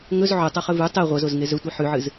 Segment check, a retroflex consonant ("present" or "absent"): absent